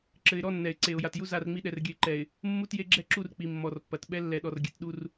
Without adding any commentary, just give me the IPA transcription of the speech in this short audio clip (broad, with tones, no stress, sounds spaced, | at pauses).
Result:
ǁ ɘ˨ ɪ̯ ɾ ɔ˦ nː ɛ˨ ɪ̯ ǀ e˨ ʊ̯ j a˨ t j u˦ z a˦˨ r ŋ͡m i˦ ɗ ɛ˨ r ɡʲ ɘ˨ ɪ̯ ǃ ɛ˨ ɪ̯ | mː u˦ t j e˦ ɡ͡ǁ ɛ˦ ǁ u˦˨ r k͡p i˨ mː ɔ˨ r pː ɐ˨ t ɓ ɛ˦ lː ɛ˨ ɗ ɔ˨ r ɡʲ ɘ˨ t ɗ u˦ r